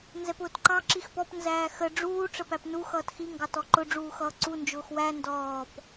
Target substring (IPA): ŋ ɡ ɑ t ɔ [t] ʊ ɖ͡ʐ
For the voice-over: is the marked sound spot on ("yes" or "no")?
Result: no